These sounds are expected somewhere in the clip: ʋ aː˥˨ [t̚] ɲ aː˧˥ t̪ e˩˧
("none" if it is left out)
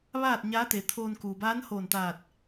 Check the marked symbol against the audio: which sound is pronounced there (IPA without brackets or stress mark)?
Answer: t̚